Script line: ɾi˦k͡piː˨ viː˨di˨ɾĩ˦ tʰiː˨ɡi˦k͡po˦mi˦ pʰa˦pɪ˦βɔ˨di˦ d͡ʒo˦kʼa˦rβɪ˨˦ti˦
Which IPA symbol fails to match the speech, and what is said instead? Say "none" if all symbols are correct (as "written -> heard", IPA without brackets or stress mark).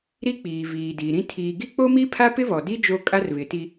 none